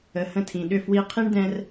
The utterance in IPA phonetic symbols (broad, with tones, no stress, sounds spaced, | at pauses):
ə˩ h ə̃˥˩ tʰ ĩ˩ ɗ ʏ˥˩ f w i˧ qʰ i˥ ɳ d ɛ̃˧ r